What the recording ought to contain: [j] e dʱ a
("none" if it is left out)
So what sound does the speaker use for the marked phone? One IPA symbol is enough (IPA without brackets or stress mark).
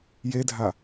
j